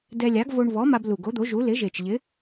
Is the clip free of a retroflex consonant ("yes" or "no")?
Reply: no